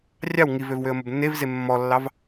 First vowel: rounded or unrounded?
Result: unrounded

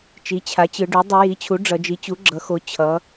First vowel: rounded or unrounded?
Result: unrounded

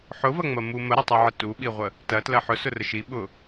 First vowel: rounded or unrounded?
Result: rounded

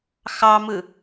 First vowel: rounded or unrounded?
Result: unrounded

